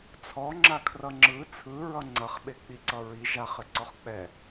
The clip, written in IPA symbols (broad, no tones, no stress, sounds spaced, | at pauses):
t͡sʰ ɔ ŋ͡ǁ a kʰ r ʌ ŋ͡ǁ ɯ t͡sʰ ɯ ɹ ʌ ŋ͡ǀ ʌ χ ɓ e k͡p i ǀ ʌ ɹ i ʒ a χ ɘ ǀ ɔ χ k͡p ɛ